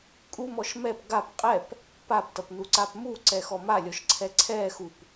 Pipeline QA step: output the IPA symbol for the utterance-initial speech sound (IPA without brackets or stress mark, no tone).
kʼ